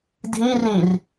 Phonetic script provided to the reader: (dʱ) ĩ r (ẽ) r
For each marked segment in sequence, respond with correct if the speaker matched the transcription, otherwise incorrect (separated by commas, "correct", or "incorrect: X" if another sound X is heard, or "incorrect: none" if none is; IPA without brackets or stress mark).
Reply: correct, incorrect: ĩ